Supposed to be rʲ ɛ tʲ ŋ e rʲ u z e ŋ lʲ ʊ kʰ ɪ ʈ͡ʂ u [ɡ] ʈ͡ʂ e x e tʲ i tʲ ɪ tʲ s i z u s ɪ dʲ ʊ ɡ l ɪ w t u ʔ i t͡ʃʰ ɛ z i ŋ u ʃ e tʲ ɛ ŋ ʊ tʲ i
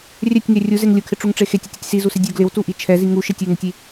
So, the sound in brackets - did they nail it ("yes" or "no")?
no